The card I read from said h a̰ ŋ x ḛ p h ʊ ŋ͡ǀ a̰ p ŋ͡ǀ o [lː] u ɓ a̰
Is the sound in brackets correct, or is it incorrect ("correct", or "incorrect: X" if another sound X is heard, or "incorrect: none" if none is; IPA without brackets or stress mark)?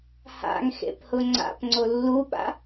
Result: correct